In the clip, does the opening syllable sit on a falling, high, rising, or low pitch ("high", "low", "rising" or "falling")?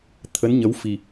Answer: rising